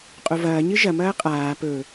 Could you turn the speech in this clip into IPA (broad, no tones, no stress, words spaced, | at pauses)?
qʼovɐː ɲɨʒɐ mɐːqʼaː pɵ